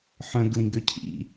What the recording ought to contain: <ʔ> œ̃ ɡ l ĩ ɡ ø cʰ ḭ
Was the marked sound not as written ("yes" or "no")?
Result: yes